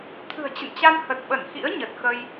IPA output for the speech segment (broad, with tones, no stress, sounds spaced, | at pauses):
t̪ʰ ɨ̤˨˩ ə̯ t͡ɕ ə̰˧˨ n t͡ɕ a˧ n h ə˨˩ t̚ ɓ ə˧˩ n x ḭ˧˥ ə̯ ɲ ə˨˩ t̚ x ə˧ j